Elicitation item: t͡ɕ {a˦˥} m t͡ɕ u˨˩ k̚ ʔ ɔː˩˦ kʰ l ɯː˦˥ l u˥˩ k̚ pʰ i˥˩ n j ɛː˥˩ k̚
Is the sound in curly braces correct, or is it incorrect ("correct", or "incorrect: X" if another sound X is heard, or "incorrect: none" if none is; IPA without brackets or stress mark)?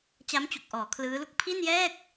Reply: correct